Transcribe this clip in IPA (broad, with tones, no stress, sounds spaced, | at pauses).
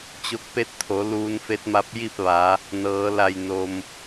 t͡ɕ o˧ k̚ p e˧˥ t̚ t̪ʰ o˩˧ l uː˧ n f e˧˥ t̚ m a˧˥ p̚ j i˥˨ p̚ ʋ a˩˧ | n ɤː˩˧ l a˧˩ j n o˩ m